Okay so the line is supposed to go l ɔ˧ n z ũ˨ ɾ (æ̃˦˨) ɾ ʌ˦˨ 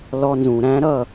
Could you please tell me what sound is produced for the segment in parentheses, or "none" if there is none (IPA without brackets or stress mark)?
æ̃˦